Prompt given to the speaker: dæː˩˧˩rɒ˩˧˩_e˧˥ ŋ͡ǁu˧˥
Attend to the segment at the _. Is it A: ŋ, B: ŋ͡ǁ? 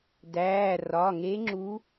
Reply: A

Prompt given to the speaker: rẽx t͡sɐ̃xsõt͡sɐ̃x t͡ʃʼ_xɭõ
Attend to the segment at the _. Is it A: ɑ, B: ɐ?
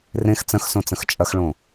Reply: B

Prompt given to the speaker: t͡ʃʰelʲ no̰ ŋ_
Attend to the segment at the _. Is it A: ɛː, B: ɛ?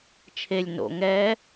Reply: A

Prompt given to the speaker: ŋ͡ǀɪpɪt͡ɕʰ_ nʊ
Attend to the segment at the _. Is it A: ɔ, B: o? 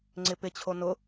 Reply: B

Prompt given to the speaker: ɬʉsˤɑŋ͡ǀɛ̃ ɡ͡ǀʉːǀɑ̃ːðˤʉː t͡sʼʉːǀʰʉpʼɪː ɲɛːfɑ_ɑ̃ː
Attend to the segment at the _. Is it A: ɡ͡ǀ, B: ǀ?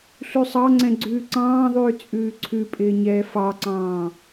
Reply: B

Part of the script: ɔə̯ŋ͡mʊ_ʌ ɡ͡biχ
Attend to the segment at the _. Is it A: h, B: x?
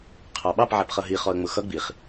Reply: B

